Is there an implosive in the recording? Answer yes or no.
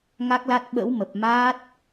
yes